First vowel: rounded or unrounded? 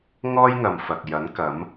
rounded